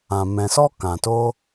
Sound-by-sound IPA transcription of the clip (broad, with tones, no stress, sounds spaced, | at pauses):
ã˨ m ɛ̃˨ s ɔ˦ k ã˨ t o˦